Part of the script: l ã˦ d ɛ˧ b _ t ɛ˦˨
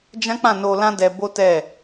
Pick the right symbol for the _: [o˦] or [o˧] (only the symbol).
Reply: o˦